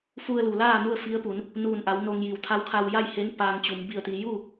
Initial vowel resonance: oral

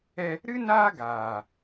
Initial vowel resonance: oral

